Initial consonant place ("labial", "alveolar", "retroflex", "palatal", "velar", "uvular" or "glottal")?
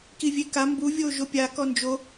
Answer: velar